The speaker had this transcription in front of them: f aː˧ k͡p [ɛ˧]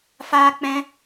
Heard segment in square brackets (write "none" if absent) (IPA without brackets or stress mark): ɛ̃˧